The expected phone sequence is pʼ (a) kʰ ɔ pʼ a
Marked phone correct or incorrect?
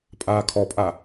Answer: incorrect